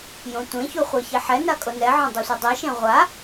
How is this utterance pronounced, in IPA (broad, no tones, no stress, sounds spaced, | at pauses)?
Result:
j õ tʷ ẽ ç u χʷ e ç e ħ ɛ n a kʼ o n ɛ ʕ õ dˤ u sʷ ɛ dˤ i ʃ ẽ ʁʷ a